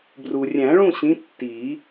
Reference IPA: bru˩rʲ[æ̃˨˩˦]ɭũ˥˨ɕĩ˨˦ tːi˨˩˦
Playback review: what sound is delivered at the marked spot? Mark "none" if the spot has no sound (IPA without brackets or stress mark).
æ̃˨˩˦